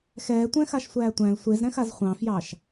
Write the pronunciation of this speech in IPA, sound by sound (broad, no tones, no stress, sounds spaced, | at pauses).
x ɛː tʷ ɛ̃ x a ʃ sʷ æː tʷ æ̃ l sʷ e z ɾ ɛ̃ x a z χʷ ɑ̃ f j ɑ ʃ